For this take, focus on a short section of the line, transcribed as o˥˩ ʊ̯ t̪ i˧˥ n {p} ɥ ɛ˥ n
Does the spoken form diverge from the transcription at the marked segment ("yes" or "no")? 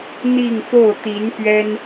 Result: no